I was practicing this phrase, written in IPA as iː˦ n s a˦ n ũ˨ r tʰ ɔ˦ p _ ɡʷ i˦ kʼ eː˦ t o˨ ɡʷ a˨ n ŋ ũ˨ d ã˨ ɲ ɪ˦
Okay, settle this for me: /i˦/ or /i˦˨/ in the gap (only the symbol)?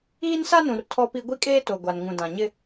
i˦